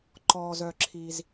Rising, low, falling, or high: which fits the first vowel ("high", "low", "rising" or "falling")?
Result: low